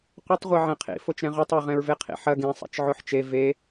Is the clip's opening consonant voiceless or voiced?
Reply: voiceless